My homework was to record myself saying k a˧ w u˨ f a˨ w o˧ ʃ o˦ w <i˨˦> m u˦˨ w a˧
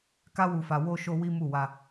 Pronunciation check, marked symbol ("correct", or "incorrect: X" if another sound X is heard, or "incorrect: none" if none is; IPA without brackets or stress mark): incorrect: i˦